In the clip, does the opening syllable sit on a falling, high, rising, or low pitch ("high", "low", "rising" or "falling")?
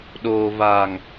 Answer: low